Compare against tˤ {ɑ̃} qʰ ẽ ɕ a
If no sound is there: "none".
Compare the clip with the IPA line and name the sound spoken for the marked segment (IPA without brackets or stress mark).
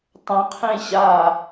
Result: ə̃